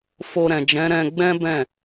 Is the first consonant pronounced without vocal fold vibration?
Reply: yes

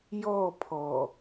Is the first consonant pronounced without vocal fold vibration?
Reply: no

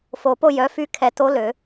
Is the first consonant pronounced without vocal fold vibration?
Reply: yes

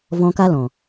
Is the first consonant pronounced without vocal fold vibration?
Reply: no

